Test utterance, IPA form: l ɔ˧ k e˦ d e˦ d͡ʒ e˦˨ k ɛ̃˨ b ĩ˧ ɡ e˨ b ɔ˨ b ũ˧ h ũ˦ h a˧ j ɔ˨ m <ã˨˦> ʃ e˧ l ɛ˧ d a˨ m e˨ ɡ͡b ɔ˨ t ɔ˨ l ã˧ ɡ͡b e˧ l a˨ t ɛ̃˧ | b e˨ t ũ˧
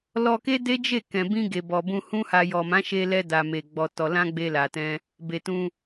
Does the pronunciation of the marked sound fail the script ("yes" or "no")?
no